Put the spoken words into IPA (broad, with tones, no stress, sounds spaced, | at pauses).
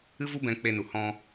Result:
ɨ˦ v u˦ b ɛ̃˧ k͡p e˧ n u˨ h ɔ̃˧